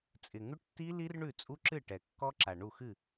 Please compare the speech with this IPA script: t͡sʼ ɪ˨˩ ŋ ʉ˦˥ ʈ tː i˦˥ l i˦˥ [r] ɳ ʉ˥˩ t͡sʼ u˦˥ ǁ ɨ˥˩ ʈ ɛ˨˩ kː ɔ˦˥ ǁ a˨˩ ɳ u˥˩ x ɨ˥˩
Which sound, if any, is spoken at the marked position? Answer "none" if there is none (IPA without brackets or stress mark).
r